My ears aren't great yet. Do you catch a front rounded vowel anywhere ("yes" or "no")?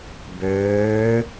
yes